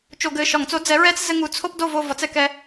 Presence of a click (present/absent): absent